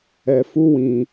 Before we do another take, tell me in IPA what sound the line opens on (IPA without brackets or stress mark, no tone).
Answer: ɛ